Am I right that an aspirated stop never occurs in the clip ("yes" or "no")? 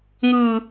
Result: yes